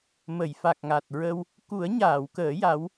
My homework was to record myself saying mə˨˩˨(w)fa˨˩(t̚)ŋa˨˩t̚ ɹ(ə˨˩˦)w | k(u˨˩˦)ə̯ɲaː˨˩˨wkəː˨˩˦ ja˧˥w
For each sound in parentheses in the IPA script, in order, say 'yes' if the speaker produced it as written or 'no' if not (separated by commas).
no, no, no, yes